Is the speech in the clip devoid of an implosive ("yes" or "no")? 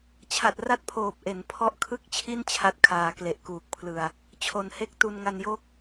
yes